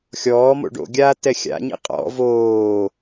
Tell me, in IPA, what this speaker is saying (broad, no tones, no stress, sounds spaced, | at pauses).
xʲ ɔː m o̰ ɖ o̰ ɡʲ aː t ɛ xʲ a̰ ɲ ḭ qʼ ɔ̰ v oː